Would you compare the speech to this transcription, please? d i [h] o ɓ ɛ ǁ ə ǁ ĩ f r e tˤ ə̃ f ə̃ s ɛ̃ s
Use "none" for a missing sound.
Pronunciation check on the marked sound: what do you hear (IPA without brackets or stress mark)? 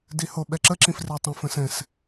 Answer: h